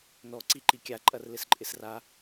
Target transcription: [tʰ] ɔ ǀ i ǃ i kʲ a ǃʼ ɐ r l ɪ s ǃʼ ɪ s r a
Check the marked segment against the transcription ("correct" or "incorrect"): incorrect